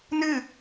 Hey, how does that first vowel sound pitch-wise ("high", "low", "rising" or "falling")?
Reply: falling